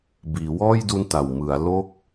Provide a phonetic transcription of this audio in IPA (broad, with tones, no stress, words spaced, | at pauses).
biː˩˦wɔː˥˩jdu˦˥n ta˨˩wmɯ˩˦a̯ lo˥˩k̚